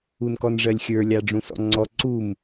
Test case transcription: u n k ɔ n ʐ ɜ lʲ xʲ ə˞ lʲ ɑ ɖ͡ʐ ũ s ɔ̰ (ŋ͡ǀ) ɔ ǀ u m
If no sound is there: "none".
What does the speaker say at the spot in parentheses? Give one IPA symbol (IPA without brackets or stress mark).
ŋ͡ǀ